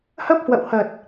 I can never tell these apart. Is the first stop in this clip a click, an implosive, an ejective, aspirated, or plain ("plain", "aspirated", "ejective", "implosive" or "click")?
plain